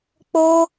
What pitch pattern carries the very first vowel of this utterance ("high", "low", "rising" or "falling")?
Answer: high